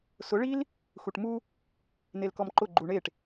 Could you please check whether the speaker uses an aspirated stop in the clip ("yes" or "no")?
no